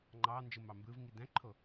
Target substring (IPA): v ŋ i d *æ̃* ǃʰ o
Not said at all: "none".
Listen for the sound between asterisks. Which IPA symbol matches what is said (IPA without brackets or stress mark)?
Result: æ̃